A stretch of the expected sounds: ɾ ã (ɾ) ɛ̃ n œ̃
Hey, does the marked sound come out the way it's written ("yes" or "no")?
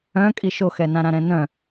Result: yes